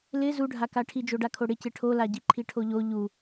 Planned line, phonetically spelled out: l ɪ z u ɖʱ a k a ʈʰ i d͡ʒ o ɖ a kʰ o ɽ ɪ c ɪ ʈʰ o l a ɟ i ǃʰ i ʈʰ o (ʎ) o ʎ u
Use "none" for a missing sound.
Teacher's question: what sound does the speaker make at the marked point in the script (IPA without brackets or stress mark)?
ʎ